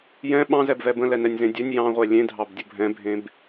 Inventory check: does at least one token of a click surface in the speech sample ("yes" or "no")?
no